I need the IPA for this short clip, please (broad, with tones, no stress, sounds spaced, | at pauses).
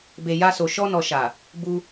b e˨ j a˧ s o˨ ʃ ɔ˧ n ɔ˨ ʃ a˨ | b u˧